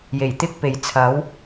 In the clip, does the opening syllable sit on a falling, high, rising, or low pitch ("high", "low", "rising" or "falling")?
low